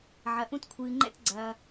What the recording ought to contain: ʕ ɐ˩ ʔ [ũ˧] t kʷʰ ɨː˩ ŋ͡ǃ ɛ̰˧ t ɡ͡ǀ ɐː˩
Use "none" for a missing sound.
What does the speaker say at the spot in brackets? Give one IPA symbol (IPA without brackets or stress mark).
ũ˧